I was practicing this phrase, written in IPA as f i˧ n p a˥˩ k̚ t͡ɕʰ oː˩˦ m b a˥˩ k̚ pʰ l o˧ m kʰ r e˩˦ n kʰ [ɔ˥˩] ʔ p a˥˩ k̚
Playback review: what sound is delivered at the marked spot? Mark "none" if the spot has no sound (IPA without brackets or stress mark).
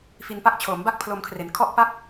ɔ˥˩